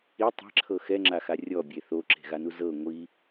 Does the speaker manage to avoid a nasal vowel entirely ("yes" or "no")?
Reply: yes